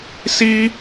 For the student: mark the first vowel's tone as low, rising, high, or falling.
high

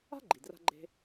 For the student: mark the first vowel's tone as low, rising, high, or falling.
high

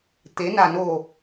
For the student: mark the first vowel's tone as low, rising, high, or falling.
rising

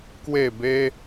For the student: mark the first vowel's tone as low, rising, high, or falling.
falling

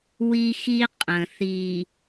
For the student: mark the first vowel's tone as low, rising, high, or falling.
high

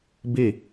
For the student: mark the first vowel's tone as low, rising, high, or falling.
falling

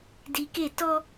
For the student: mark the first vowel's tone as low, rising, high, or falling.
low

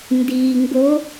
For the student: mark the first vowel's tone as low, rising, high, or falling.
low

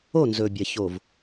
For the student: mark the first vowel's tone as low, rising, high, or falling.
falling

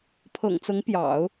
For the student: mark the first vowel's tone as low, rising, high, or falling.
low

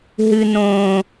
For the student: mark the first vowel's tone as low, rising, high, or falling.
high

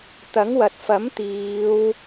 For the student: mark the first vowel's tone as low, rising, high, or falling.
rising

